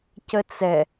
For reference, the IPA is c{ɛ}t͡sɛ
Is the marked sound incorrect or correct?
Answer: incorrect: ə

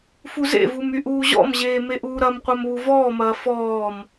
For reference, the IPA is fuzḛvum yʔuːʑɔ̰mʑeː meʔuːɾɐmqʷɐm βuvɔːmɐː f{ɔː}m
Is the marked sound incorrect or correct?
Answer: correct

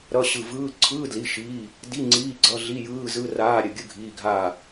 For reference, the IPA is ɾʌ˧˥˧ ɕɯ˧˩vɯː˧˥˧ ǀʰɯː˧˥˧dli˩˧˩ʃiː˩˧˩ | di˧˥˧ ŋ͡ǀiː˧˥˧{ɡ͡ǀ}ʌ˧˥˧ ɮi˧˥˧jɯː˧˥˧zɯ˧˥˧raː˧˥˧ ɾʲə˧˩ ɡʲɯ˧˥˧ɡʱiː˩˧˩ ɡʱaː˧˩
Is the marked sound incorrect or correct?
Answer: correct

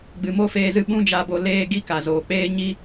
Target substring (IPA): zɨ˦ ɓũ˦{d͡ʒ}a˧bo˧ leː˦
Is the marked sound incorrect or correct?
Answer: correct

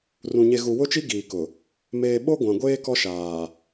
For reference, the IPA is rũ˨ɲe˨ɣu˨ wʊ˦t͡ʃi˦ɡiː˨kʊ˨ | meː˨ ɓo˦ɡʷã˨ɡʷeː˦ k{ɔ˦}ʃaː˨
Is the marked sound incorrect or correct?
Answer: correct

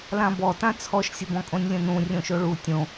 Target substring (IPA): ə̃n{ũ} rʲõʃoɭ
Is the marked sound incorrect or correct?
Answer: correct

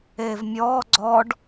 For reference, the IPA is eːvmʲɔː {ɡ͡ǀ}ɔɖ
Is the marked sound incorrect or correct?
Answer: correct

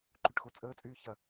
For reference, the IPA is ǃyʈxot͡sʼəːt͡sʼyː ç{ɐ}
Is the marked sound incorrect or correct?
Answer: correct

